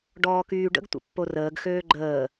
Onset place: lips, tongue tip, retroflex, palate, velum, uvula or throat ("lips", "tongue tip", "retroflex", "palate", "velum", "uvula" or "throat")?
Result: retroflex